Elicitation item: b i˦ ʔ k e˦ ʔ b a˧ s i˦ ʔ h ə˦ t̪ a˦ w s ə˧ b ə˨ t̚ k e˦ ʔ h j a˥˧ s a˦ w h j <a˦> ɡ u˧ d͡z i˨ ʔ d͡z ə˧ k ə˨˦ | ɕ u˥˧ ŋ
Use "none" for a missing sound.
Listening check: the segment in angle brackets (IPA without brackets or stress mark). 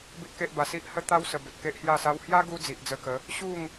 a˦